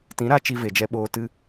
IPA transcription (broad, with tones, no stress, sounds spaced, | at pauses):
t ĩ˨˦ ɾ a˧ t͡ʃ i˧ v e˨ d͡ʒ ɛ˧ ɓ oː˧ t ɨ˧